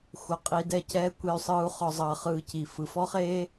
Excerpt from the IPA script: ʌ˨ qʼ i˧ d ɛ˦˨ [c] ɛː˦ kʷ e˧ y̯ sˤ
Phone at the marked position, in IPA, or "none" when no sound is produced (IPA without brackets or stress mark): c